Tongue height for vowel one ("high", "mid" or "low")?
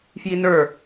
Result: high